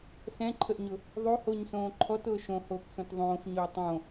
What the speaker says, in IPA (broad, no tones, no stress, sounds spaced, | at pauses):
s ɛ̃ ǃʰ ə ʔ ɲ ʊ | ðˤ o h o ɲ s õː ǃʰ ɔ t ʊː ʃ õ h oː k s õ t ðˤ õː f ɲ ʊː tˤ õ